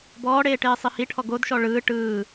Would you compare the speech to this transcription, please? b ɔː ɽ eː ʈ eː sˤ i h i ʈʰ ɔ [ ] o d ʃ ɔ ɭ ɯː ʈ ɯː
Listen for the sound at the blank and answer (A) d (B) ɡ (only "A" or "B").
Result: B